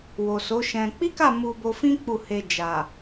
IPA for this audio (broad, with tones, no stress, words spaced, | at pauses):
wo˨so˨˦ʃɛ̃˧ k͡pi˦ka˦˨ mu˧bo˧fĩ˦ k͡pu˦˨he˧d͡ʒa˨